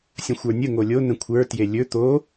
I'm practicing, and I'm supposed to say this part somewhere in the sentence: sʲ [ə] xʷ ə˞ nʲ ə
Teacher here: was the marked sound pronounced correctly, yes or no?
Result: no